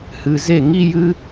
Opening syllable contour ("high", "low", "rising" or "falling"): low